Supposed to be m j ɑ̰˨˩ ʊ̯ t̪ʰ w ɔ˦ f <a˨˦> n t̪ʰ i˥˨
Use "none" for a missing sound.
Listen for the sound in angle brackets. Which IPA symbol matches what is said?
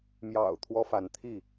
a˨˦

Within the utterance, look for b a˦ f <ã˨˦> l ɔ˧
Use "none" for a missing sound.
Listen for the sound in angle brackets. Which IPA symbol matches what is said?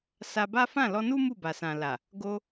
ã˦˨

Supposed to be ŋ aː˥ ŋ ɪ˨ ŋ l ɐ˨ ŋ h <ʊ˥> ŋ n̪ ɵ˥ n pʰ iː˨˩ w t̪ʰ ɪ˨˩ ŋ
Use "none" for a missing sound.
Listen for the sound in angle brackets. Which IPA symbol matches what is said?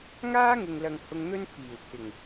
ʊ˧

